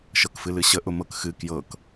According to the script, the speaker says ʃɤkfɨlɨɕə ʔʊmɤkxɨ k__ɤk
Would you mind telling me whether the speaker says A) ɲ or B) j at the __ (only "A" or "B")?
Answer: B